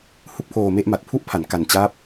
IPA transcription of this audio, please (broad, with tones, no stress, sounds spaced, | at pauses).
h u˥˩ k̚ pʰ oː˧ m e˥˩ ʔ m a˨˩ t̚ pʰ u˥˩ ʔ pʰ a˩˦ n k a˨˩ n t͡ɕ a˦˥ p̚